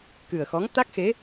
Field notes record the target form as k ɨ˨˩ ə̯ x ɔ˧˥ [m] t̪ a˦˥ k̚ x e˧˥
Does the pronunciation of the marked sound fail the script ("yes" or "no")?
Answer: yes